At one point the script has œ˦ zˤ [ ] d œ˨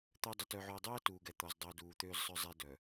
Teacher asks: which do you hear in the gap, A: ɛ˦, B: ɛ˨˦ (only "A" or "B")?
A